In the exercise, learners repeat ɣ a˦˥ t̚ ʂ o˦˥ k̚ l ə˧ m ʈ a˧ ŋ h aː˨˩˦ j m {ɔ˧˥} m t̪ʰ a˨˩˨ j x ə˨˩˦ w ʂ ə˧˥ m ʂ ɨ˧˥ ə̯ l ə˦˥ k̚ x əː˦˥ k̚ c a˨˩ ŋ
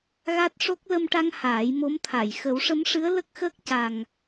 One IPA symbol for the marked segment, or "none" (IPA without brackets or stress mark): o˧˥